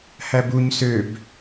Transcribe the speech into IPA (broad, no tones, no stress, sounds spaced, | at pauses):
h æ b u ɲ s ø b